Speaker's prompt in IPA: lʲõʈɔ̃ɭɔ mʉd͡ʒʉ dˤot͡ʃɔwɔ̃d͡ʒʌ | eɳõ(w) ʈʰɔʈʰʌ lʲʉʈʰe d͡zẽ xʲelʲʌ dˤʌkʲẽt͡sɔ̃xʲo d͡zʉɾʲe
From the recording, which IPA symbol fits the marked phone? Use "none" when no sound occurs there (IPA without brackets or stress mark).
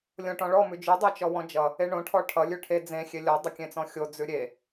none